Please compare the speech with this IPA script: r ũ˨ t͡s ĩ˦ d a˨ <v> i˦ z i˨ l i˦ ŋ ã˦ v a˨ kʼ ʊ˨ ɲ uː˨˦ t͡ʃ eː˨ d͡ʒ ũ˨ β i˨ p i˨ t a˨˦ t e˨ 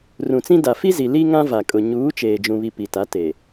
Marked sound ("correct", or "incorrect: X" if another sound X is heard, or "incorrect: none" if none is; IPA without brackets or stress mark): incorrect: f